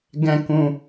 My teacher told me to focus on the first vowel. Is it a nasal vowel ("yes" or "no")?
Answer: yes